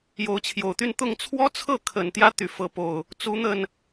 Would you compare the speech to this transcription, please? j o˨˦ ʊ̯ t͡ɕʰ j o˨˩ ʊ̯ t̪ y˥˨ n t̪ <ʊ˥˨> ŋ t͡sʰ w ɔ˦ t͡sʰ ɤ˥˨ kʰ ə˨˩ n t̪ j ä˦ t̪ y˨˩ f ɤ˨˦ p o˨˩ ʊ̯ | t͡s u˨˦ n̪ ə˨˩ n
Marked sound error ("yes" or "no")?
no